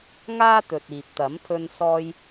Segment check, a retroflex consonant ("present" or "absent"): absent